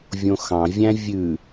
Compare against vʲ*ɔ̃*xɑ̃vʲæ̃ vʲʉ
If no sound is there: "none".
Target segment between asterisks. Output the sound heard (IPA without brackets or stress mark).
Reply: õ